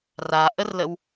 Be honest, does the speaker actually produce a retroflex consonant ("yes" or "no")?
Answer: no